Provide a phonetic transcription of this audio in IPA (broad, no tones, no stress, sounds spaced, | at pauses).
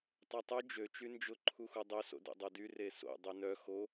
tˤ o tˤ u d͡ʒ ø t͡ʃ y n d͡ʒ ʊ ǃʰ u x u dˤ ø s o̰ d ḛ dˤ o d y r e s o̰ dˤ y n œ x o